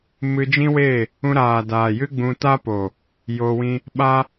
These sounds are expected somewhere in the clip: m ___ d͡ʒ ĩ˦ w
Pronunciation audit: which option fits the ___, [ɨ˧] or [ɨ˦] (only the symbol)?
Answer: ɨ˧